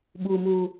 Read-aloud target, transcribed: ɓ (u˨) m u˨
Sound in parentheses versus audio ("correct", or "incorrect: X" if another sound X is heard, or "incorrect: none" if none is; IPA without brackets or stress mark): correct